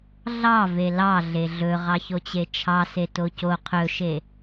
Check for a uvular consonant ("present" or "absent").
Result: present